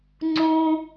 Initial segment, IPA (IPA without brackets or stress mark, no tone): ŋ͡ǀ